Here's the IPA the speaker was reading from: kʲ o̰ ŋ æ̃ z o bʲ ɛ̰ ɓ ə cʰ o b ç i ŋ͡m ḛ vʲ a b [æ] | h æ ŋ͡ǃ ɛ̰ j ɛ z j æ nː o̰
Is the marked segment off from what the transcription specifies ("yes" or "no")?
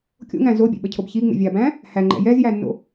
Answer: yes